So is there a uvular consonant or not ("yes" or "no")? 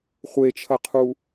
yes